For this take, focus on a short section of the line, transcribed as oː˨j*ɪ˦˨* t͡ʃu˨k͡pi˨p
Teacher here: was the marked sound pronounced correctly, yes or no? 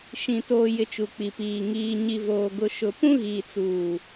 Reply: no